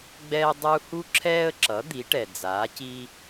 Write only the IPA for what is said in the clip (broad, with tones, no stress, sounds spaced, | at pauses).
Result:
ɡ͡b ɛː˥ dˤ u˥ h u˥ ǁʰ ɛː˥ ə̯ ǁ ʌ˩˥ d̪ i˩˥ ʈ ɛ˩ d͡z aː˩˥ c i˥